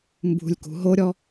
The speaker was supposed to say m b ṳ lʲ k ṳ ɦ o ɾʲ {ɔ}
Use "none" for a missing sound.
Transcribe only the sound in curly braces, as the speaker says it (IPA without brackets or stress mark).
ɔ